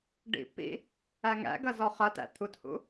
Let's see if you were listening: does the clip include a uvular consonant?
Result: yes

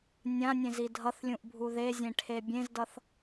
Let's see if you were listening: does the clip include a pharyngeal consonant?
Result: no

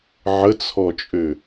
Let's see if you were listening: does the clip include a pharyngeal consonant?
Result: yes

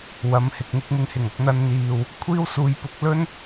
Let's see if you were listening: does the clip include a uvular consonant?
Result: no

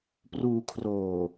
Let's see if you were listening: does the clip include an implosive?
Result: no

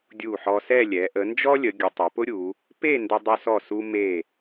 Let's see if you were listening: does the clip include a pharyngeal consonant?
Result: yes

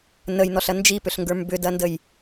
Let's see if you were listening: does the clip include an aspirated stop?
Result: no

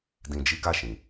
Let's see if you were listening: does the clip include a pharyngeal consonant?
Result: no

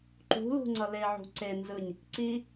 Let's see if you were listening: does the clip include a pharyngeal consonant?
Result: yes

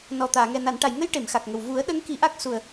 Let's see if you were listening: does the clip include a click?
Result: no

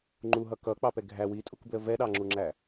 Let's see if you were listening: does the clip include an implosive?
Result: yes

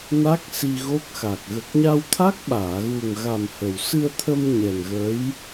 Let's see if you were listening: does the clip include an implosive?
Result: yes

